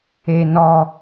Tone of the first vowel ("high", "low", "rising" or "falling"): low